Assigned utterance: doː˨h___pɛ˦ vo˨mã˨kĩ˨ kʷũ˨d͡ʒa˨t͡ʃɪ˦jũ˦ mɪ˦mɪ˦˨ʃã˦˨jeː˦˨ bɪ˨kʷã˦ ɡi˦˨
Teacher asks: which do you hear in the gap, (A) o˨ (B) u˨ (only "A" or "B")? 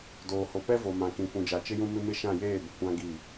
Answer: A